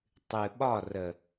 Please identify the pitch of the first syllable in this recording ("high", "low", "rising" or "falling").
low